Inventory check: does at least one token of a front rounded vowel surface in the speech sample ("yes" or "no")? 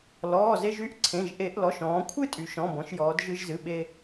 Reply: yes